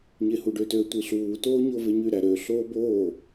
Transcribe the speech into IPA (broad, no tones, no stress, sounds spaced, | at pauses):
ɲ e h u ɖ ø t ø tʷ i ɬ uː t oː ɲ o v e ɲ y ɾ æ ɾ ø ɬ oː b oː